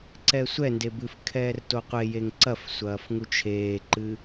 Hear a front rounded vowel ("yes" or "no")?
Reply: no